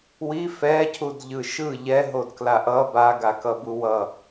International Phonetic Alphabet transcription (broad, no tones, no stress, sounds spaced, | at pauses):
w i f ɛ cʰ u d ʎ ɯ ʃ ɯ ʎ ɛ ɦ o d k l a ʔ ʌ b a ɡ a k ʌ b u w ʌ